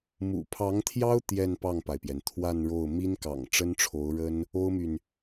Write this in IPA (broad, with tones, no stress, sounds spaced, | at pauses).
m ṵ˨˩ pʰ ɑ˧˥ ŋ t̪ʰ j ɑ˥ ʊ̯ t̪ j ɛ˥˧ n p ɑ˥˩ ŋ p a˩ ɪ̯ p j ɛ˩ n t̪ʰ w a˥˧ n ɻ o˥˩ ʊ̯ m i˥ n k ɑ̰˨˩ ŋ ʈ͡ʂ ə˥ n ʈ͡ʂʰ o˧˥ ʊ̯ ɻ ə˥ n | o˥ ʊ̯ m y˨ n